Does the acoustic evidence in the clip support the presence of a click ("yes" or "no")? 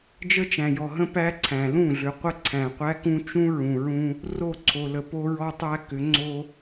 yes